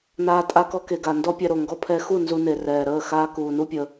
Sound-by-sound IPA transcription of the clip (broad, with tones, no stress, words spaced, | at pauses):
naː˧tʼa˧kɔ˧ke˨ ɡa˨ndɔ˦pʲɛ˧ɾo˨ ŋɡɔ˧pʰɛ˧xu˦˨ nzu˧ne˨ rɛː˨ɾəː˦˨ xaː˧ kuː˨nu˦pʲə˧